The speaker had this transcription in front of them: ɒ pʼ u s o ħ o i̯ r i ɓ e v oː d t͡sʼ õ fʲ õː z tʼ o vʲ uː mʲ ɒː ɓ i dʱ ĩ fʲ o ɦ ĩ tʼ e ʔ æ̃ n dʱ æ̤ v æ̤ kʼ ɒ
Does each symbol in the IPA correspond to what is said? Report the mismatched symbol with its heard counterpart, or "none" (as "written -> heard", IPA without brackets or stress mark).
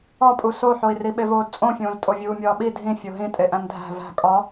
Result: none